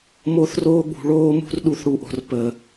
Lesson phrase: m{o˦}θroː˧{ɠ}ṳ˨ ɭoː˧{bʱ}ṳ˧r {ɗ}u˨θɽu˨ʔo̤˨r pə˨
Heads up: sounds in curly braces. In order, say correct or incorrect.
incorrect, correct, incorrect, correct

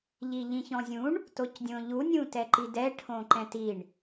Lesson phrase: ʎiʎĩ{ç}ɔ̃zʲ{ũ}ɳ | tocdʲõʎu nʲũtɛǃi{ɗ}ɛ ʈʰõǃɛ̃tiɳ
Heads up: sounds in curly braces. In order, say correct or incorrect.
correct, correct, incorrect

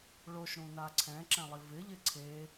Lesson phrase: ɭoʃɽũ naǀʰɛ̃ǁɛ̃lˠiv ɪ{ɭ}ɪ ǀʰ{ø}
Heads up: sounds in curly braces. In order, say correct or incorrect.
incorrect, incorrect

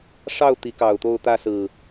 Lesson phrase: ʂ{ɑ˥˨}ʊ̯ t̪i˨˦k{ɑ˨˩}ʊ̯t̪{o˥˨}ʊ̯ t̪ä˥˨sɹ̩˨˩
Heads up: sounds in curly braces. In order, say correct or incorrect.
correct, correct, correct

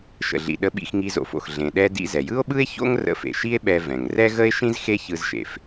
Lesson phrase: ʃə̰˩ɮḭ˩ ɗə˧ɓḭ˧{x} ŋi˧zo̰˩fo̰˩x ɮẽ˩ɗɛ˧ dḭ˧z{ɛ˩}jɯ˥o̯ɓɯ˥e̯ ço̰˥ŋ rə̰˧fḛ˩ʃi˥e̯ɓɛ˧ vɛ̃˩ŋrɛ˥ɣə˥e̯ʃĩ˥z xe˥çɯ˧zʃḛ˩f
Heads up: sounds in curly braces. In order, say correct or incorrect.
correct, correct

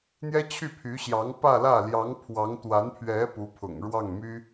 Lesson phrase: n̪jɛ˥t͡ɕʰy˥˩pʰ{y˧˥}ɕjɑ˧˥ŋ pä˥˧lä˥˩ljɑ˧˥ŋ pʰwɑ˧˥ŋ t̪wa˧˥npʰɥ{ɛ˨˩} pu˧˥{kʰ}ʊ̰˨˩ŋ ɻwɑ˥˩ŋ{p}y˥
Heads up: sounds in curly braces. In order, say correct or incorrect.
correct, incorrect, incorrect, incorrect

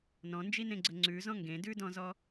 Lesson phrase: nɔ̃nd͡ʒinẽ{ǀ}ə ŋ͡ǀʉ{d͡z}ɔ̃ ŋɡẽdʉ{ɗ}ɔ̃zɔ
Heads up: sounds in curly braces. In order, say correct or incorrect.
incorrect, incorrect, incorrect

